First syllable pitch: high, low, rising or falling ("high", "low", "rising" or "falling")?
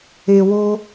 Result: low